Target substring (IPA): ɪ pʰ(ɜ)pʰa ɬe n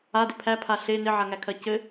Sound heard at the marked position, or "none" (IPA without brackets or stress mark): æ